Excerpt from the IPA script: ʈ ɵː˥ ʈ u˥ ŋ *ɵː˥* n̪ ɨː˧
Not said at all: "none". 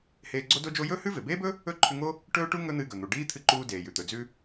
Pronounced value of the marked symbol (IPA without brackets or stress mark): ɵ˥